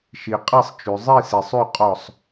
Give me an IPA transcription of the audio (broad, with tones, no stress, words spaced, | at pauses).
ʃi˨qʼɛ˥˨sˤt͡ʃʉ˨ zˤi˥˨se˨sˤʉ˥˨ qʼɔ˥˨sˤ